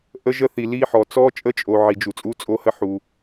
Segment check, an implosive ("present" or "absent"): absent